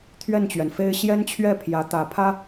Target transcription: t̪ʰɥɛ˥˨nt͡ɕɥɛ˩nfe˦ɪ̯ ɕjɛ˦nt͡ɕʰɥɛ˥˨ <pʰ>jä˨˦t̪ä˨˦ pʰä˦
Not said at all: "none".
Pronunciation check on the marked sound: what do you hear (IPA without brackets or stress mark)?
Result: pʰ